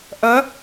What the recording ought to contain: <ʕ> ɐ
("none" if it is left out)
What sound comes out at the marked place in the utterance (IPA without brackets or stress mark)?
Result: ʔ